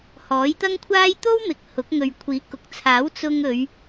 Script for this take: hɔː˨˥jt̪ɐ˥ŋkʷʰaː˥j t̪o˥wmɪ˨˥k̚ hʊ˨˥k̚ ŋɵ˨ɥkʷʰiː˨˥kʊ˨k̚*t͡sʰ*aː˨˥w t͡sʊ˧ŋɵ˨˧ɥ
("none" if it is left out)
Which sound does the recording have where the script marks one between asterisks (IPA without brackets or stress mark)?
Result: t͡sʰ